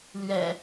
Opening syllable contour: low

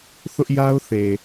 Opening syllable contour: high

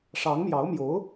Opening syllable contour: rising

